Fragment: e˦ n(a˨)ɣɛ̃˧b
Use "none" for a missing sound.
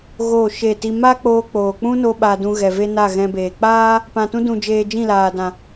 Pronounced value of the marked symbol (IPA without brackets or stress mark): a˦˨